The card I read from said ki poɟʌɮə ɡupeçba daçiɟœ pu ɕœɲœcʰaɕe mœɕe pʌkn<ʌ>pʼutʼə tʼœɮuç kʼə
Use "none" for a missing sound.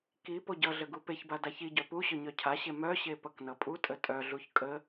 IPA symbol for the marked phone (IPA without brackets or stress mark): ʌ